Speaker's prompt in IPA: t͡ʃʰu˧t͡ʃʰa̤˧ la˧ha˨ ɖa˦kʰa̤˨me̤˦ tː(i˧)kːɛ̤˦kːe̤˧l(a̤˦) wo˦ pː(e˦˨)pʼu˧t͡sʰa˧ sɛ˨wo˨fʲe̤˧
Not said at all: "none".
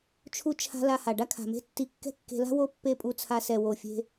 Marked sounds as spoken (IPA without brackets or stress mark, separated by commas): i˧, a̤˦, e˦˨